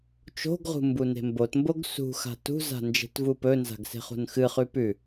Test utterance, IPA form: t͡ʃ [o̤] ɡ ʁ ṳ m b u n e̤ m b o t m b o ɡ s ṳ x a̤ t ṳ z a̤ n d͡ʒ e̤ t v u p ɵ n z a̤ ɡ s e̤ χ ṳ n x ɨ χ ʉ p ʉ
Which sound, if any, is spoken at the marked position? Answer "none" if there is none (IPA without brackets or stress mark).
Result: o̤